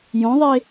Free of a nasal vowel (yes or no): no